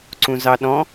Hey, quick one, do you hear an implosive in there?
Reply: yes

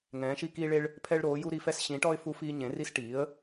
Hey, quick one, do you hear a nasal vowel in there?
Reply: yes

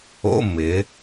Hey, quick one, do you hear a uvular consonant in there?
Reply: no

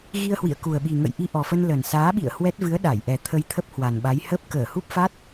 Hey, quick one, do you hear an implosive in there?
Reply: yes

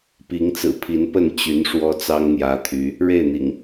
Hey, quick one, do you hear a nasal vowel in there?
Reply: no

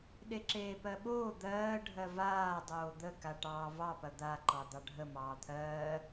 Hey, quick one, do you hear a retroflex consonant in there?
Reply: yes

